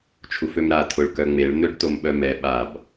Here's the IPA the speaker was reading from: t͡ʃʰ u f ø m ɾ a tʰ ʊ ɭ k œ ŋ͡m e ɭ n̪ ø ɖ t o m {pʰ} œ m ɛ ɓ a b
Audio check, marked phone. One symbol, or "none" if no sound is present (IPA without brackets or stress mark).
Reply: ɓ